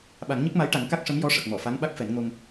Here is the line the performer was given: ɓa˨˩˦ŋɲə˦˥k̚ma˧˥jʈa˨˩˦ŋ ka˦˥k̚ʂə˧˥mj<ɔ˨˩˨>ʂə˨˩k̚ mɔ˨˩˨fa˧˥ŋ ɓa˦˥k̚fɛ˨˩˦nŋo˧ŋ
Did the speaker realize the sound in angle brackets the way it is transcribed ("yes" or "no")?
no